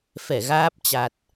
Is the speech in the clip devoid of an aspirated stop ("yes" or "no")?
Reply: yes